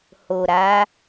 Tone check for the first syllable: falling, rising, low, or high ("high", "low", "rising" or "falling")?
low